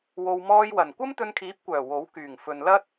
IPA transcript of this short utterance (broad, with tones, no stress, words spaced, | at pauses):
wo˨wmɔː˧jwɐ˨˩n kʷɐ˥mt̪ɵ˧nkʰiː˨˥p̚kʷœː˨˩ wo˨˥w kyː˨˩ŋfɵ˨nlɐ˥t̚